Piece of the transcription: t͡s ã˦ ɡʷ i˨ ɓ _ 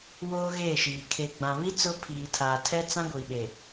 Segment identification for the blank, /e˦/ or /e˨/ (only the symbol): e˨